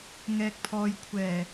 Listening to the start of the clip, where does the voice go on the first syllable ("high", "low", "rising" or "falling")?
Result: low